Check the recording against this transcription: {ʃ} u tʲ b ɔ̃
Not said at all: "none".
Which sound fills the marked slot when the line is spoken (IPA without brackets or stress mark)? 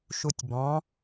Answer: ʃ